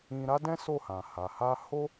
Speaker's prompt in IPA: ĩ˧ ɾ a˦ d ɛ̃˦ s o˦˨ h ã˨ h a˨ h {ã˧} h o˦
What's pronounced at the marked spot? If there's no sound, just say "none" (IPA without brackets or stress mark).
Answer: a˧